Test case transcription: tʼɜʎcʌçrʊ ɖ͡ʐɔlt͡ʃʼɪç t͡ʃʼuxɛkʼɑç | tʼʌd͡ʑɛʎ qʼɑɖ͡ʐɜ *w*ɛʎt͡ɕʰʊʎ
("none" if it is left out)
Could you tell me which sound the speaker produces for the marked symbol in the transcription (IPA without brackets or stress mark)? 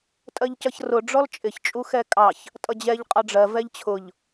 v